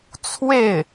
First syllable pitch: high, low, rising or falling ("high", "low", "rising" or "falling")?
falling